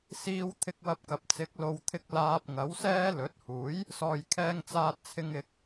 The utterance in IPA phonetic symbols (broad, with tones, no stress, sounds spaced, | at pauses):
s iː˧ w t̪ʰ ɪ˧ k̚ w ɐ˧ p̚ k ɐ˨ p̚ t͡s ɪ˨˥ k̚ l o˨˧ w t̪ʰ ɪ˧ k̚ l aː˧ p̚ ŋ ɐ˨˥ w s ɛː˥ l ɵ˨˥ t̚ h uː˨˥ j | s ɔː˨ j kʰ ɛː˧ ŋ t͡s aː˧ t̚ t͡sʰ ɪ˧ ŋ ɪ˧ k̚